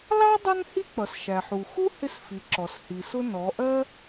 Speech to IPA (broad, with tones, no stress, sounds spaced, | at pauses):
l ɑ˥ dˤ ʌ˥ n h i˥ k͡p ʌ˩ s ʃ æ˩ ħ u˩ x u˥ h ɪ˥ s f i˩˧ ǁ ɔ˩ s h i˩ s ʊ˥ n ɔ˩˧ ʔ ɜ˥